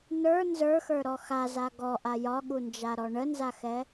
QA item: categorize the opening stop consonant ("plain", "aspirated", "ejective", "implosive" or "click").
plain